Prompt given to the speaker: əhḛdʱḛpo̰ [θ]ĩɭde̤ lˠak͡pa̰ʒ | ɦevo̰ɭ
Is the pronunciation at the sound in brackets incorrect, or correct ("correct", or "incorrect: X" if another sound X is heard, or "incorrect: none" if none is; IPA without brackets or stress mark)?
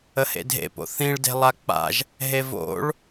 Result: correct